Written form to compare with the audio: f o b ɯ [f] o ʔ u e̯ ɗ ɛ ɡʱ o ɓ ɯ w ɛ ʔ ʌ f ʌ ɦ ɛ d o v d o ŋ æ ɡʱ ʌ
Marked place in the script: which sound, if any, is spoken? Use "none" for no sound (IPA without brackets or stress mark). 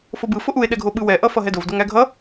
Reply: f